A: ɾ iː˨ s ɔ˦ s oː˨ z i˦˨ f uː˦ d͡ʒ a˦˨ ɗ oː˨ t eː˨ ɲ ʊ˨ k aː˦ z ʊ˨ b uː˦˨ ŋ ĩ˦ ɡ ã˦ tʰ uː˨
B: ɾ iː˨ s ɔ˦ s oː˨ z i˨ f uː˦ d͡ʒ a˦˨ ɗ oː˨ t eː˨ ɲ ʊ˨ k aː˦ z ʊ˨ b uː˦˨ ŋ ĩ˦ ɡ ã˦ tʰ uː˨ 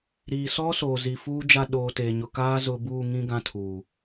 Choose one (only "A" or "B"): B